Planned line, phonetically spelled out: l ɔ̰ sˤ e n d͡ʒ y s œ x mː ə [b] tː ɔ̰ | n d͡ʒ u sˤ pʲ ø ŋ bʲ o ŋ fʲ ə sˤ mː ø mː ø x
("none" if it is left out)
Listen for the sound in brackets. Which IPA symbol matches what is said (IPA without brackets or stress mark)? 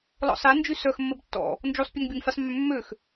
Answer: b